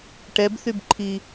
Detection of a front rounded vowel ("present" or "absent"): present